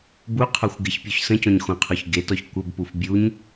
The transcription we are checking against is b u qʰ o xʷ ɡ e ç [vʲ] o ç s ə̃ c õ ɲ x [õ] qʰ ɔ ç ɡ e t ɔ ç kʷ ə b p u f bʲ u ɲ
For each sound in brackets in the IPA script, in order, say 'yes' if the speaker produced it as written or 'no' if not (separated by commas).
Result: no, yes